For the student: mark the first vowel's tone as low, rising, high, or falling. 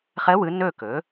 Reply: rising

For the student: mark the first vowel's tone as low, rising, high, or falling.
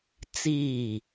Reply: falling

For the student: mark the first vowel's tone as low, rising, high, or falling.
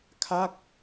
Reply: falling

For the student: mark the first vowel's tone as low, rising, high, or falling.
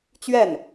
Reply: falling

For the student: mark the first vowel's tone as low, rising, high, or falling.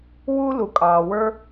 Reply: high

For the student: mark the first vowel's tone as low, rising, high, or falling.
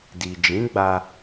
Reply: low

